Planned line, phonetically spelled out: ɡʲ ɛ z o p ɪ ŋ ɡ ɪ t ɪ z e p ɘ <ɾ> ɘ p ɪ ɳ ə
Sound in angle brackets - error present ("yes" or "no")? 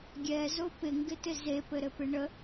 no